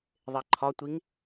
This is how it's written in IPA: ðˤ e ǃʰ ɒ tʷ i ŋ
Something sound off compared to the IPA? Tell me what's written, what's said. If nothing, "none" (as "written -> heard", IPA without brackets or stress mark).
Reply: none